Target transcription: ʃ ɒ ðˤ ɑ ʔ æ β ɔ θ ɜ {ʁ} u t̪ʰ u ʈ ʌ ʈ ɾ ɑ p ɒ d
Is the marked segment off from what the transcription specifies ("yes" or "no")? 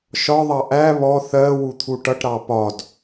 yes